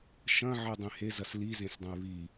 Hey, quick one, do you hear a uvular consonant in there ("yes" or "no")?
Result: no